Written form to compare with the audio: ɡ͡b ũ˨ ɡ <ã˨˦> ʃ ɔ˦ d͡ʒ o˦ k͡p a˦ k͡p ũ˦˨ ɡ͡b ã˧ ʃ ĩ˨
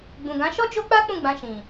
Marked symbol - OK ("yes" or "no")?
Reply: yes